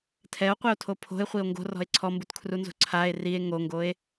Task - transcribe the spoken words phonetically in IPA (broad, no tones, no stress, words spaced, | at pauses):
tʰɛo̯qʷɪo̯tʰo pʰo̤e̯χʷio̯ ŋɡo̤rɔ̤e̯ ǀʰɔmbutkʰrunzo̤ ǀʰae̯ rie̯ ŋoŋɡoe̯